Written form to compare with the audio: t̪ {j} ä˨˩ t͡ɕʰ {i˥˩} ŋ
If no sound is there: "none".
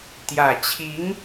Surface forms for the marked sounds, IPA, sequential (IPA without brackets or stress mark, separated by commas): j, i˧˥